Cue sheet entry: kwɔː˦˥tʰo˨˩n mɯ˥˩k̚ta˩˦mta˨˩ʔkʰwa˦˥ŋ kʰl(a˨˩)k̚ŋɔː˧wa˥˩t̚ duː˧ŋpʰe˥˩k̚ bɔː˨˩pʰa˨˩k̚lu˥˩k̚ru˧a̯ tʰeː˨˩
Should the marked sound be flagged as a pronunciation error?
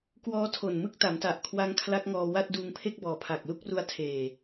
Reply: yes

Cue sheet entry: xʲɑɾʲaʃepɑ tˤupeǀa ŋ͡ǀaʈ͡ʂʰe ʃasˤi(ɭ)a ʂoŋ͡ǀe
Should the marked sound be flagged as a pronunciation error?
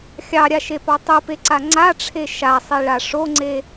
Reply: no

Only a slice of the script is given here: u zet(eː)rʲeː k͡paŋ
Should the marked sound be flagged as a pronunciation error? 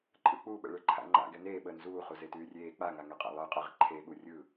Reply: yes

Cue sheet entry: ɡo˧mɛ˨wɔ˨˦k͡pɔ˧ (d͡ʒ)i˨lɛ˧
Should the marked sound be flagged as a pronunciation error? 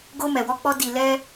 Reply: yes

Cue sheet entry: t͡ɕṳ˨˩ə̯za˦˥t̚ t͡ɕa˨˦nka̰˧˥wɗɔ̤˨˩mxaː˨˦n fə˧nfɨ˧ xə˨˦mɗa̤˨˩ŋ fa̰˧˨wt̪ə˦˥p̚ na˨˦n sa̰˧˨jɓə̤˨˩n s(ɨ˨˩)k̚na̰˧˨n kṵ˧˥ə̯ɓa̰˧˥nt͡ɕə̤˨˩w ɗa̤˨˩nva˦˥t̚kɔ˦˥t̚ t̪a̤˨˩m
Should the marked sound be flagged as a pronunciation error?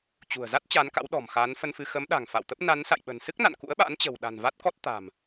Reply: yes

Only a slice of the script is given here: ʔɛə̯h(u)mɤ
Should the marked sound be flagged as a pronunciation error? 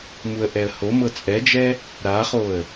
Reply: yes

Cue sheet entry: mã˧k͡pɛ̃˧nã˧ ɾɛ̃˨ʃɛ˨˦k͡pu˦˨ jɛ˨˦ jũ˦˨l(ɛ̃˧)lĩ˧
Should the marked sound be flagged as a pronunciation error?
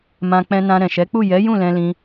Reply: no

